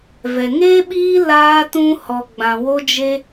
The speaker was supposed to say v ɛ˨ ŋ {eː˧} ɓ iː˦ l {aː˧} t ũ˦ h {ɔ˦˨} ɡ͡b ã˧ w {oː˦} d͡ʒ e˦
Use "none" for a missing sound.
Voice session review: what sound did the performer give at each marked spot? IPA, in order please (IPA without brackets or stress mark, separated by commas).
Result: eː˦, aː˦, ɔ˧, o˦